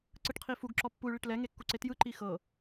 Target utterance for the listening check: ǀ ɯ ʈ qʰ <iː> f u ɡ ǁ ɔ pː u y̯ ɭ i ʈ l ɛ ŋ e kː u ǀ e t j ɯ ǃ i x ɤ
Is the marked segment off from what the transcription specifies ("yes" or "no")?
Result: yes